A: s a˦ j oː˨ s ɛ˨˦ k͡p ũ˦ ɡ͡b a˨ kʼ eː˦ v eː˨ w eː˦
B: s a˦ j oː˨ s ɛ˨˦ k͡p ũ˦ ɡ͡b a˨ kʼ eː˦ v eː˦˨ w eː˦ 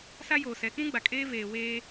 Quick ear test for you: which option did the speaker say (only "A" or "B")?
A